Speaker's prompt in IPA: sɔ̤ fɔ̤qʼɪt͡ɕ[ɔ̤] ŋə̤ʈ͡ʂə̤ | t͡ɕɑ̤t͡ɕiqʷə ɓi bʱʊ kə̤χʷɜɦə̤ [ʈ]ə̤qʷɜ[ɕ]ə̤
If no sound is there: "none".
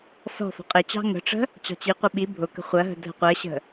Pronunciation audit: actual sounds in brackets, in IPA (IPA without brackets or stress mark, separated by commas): ɑ̤, dʱ, ɕ